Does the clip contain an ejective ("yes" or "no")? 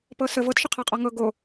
yes